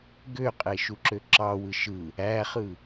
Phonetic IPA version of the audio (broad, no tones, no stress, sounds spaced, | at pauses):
ɡ ø qʼ e ʃ u ǁ ø ǁ ɑ w ɯ ʃ ɯ | æ χ ɯ